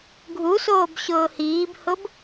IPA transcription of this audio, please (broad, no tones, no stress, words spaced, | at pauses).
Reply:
ɡʱusoːbɕʊː hiːbhʊb